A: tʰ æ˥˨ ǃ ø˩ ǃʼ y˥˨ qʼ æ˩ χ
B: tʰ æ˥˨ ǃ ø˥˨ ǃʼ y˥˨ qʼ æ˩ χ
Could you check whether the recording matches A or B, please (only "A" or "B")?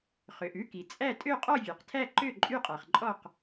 B